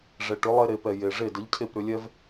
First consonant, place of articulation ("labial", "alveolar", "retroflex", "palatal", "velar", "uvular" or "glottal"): retroflex